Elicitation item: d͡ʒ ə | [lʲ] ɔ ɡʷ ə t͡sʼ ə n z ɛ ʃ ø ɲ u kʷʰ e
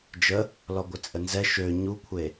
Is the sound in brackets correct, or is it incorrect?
incorrect